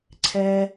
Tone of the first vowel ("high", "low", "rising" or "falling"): low